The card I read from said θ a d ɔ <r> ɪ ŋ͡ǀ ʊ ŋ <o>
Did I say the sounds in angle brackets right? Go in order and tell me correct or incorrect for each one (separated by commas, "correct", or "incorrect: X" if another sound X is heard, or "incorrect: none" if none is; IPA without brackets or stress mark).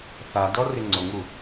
correct, incorrect: u